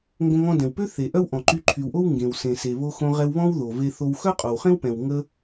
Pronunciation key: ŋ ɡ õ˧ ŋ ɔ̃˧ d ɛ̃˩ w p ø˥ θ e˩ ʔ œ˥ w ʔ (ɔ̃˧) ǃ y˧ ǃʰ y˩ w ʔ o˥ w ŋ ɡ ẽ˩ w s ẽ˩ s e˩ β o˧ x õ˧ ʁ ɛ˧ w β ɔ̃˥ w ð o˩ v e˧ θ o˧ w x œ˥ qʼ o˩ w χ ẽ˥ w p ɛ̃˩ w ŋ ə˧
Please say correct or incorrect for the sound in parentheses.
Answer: incorrect